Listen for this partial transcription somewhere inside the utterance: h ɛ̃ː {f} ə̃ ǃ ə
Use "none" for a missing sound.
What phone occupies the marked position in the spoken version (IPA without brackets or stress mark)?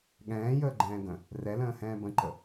b